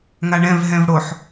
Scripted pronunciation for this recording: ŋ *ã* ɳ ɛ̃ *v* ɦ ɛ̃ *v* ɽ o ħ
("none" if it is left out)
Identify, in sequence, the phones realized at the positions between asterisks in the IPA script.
a, v, v

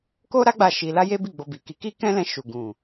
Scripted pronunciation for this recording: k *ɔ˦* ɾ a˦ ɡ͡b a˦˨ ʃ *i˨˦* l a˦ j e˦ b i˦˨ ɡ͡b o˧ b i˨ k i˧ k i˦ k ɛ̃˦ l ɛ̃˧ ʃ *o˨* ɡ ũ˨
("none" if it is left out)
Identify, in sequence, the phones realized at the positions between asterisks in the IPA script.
o˦, i˧, u˨

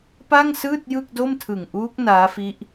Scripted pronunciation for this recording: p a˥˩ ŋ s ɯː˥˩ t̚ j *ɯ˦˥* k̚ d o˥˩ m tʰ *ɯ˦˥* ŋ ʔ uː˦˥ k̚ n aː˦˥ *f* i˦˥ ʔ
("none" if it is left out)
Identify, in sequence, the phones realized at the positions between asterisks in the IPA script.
ɯ˥˩, ɯ˨˩, f

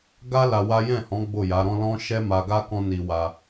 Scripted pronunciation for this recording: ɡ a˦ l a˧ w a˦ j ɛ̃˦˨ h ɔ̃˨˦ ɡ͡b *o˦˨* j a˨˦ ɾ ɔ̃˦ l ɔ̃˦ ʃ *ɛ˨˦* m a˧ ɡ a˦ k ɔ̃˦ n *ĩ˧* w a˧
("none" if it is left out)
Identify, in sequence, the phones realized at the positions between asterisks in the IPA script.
o˦˨, ɛ˦, i˧

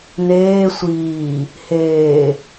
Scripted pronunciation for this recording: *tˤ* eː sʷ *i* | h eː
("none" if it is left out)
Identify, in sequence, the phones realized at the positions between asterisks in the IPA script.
n̪, iː

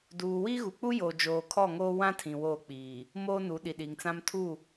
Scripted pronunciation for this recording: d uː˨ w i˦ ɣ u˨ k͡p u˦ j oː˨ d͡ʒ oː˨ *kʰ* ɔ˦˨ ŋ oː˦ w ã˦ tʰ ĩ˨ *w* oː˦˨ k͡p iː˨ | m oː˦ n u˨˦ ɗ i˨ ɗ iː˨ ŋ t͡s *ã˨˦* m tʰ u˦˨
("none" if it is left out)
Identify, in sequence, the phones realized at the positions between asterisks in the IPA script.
kʰ, w, ã˦

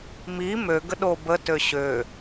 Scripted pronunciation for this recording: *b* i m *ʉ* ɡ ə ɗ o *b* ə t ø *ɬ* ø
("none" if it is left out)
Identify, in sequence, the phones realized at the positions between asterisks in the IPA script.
m, ø, b, ɕ

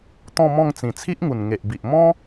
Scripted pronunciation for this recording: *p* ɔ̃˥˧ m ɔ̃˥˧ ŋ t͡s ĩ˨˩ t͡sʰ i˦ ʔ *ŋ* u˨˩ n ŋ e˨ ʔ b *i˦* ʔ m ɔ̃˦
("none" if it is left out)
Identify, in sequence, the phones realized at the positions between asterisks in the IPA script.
t̪, ŋ, i˨

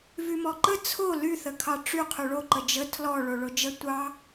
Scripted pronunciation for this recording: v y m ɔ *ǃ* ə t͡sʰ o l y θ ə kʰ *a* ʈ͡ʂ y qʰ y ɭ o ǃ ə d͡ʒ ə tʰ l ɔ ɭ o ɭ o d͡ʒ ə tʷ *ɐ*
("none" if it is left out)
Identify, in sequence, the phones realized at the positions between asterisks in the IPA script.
ǃ, ɑ, ɑ

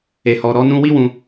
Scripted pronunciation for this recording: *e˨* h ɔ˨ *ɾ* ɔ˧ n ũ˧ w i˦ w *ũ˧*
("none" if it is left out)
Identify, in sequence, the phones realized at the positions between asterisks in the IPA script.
e˨, ɾ, ũ˧

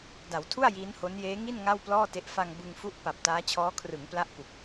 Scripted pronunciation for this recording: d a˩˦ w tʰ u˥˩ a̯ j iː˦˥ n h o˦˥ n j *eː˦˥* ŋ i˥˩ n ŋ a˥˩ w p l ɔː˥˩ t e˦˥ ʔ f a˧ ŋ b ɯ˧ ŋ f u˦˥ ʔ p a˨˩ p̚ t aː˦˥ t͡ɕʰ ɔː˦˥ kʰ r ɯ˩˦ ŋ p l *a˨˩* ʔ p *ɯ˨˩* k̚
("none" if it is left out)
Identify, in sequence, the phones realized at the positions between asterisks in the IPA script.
eː˦˥, a˦˥, u˨˩

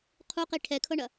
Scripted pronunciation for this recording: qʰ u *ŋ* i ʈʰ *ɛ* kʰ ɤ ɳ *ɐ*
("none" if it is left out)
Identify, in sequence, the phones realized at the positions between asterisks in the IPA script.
q, ɛ, ɐ

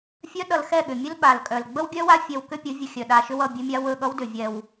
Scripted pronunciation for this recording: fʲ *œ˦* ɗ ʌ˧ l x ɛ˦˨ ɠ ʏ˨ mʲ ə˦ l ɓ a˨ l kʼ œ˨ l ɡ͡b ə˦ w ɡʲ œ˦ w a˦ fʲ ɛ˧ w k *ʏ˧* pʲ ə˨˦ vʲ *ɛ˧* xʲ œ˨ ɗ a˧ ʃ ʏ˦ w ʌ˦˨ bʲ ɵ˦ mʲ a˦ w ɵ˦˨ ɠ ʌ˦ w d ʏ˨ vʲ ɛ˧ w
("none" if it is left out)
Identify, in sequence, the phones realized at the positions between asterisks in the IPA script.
œ˦, ʏ˦, ə˧

